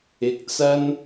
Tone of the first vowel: low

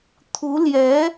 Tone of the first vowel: rising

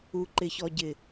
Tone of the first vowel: low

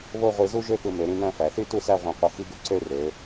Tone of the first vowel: falling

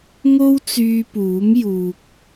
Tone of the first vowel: high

